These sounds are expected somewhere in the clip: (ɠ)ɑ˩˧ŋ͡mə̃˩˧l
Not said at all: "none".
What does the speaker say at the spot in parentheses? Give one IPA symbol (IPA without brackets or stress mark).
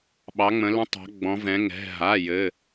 ɓ